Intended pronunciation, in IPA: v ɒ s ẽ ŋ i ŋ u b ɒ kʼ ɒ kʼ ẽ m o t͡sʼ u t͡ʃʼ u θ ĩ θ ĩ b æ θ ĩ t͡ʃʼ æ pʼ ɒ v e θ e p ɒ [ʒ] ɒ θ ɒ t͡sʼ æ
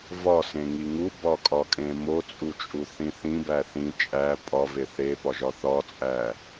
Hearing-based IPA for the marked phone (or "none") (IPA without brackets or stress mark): ʒ